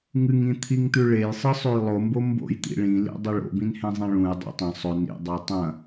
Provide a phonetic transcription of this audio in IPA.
ŋ ɨ ŋ ĩ t̪ʰ i ŋ t̪ ʉ ɭ e j sˤ ɨ sˤ ʉ j lˠ o m b o m b o̰ j t̪ ḭ ɭ ĩ l ḭ dˤ i ɭ o̰ b ĩ n h ẽ zˤ ẽ ɭ ũ j dˤ ḭ tˤ ɐ̃ sˤ ɵ n ḭ dˤ a tˤ ɐ̃

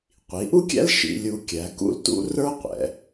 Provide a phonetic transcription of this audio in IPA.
qʷ i˩˧ ʔ u˥ kʲ æ̰˥ l ʃ ḭ˧ lʲ u˧ kʲ æ˩˧ k ṵ˥˧ l t ṵ˥ r ə˞˥ qʷ ɛ̰˩˧

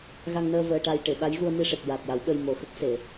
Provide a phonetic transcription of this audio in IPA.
ɣ a˧ ŋ n əː˧ v əː˧ ʈ a˧ j ʈ e˨˩˨ ɓ a˧˥ j ɣ u˧ ə̯ m i˧ ʂ e˨˩ k̚ j a˨˩ t̚ j a˨˩˦ w ɓ ə˧ j m o˨˩ x ə˦˥ k̚ s e˨˩˨

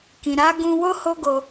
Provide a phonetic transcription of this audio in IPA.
k ĩ˨ ɾ a˨˦ ɡ ũ˧ w o˦ h o˦ ɡ o˧

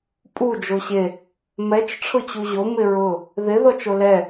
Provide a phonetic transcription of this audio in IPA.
pʼ u d͡ʒ o ɕ e | m ɛ t͡ʃ ʈ͡ʂʰ ʊ t͡ɕ u ʑ o m ɪ ɹ ʊ | ð ɪ ð ɔ t͡ʃ o l ɛ

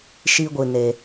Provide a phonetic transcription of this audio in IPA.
ʃ i˦ ɡʷ ɨ˧ n e˧

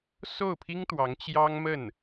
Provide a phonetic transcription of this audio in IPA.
s o˥˩ ʊ̯ pʰ i˥ ŋ t̪ w ɑ˧˥ ŋ t͡ɕ j ɑ˥ ŋ m ə˥˩ n

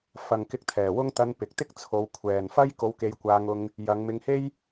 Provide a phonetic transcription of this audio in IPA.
f ɐ˨ ŋ k ɪ˧ k̚ t̪ʰ ɛː˨˩ w ʊ˥ ŋ t̪ ɐ˧ n p ɪ˨ k̚ t̪ ɪ˥ k̚ t͡sʰ o˨˧ w kʷʰ ɛː˨ n f ɐ˥ j k o˧ w k e˧ j kʷ aː˧ ŋ ʊ˧ ŋ | j ɐ˨˧ ŋ m ɪ˧ ŋ h e˥ j

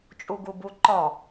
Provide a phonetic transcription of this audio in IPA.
t͡ʃʼ u ɡ u b u ǃ ɔ

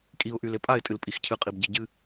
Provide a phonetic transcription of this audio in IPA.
kʼ i ʊ̯ ʔ y l e pʼ a ɪ̯ tʼ ɨ l pʼ i x cʰ ɨ qʼ i b ɟ i ɟ ɨ

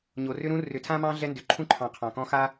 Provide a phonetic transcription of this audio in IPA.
ɲ o˩ r ʏ˥ ɾ ũ˥ r ʏ˨ tʰ ã˥ m ɑ̃˥ ɮ ɛ˦ n d ʏ˨ ǃʰ ũ˥ ǃʰ ɑ̃˨ qʰ ɑ̃˩ k ɔ̃˦ x a˥

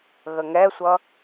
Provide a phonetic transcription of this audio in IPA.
ɣ ə ŋ ɛ sʷ ʌ

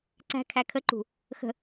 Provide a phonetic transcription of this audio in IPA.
ǀ æ̤ kʰ æ kʰ ə ǃ ṳ | x ə̤

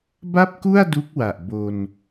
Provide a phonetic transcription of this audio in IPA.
b a˥˩ p̚ k u˥˩ a̯ d u˦˥ k̚ w a˨˩ ʔ b o˧ n

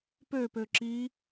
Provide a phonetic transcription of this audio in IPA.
p ø p ø ǁ i

